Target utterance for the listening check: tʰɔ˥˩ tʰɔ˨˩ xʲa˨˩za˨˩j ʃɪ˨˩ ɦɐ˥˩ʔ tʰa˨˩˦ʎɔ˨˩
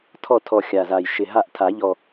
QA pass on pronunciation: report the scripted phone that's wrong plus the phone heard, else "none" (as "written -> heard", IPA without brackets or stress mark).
ɐ˥˩ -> a˥˩